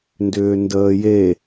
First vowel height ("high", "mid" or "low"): high